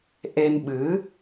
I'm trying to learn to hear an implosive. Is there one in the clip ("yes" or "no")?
yes